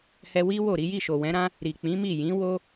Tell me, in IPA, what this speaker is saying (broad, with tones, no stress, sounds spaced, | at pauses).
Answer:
h ɛ˧ w i˦ w o˦˨ ɾ i˨˦ j i˦˨ ʃ o˨ w ɛ̃˨˦ ɾ ã˦ | ɾ i˨ k͡p ĩ˨˦ m i˦˨ j ĩ˨˦ w o˦